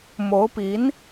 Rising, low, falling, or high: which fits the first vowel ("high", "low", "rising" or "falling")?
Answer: rising